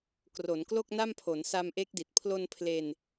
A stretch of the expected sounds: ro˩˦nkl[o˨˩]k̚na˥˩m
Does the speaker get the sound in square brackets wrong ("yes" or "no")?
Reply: yes